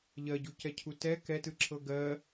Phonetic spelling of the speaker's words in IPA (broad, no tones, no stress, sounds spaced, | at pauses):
ʎ ɜ ɟ u c ɛ cʰ u t ɛ k ɛ t ɯ ǁʰ ɤ ɡ ɜ